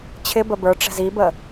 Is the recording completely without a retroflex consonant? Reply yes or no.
no